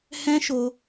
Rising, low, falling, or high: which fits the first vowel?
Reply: high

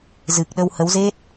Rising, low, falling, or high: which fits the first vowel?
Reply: low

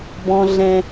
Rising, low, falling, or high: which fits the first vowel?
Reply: high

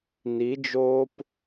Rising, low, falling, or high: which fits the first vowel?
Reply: rising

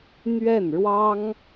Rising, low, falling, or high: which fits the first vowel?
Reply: falling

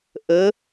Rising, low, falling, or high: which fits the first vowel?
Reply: rising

